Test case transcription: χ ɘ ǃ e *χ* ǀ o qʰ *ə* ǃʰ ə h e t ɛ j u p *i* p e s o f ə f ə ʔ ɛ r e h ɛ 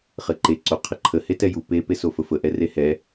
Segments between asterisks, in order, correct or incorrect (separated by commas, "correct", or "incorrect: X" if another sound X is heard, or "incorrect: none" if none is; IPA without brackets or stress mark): incorrect: none, correct, incorrect: e